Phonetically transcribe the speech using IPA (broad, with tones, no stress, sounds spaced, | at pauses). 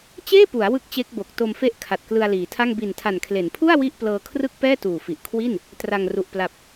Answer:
t͡ɕ eː˥˩ p u˩˦ a̯ w ɯ˥˩ k̚ t͡ɕ e˦˥ k̚ b o˨˩ k̚ t o˧ m f e˦˥ ʔ kʰ a˨˩ t̚ k l ɯ˧ a̯ l iː˩˦ tʰ a˥˩ ŋ b i˨˩ n tʰ a˨˩ n kʰ l e˩˦ n pʰ u˥˩ a̯ w i˥˩ ʔ p l ɤː˧ kʰ r ɯ˥˩ k̚ p ɛː˥˩ t uː˨˩ f i˨˩ ʔ kʰ w i˥˩ n | t r a˨˩ ŋ r u˨˩ ʔ p l a˨˩ p̚